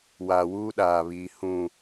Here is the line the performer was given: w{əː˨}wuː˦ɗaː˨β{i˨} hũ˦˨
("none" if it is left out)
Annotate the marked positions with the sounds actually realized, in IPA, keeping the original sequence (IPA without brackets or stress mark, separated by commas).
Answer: aː˨, iː˨